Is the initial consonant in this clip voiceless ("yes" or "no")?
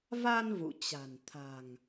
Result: no